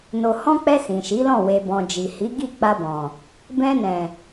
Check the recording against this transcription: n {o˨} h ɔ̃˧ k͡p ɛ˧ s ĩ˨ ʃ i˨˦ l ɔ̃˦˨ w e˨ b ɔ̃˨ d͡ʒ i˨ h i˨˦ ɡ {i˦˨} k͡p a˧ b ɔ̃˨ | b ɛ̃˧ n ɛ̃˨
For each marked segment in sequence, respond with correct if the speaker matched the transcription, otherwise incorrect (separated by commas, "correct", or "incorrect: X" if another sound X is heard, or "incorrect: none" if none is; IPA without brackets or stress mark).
correct, correct